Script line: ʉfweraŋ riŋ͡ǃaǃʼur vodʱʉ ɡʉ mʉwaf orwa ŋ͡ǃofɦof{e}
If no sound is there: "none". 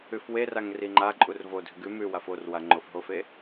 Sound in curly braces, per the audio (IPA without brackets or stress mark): e